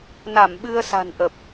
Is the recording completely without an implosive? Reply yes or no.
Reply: no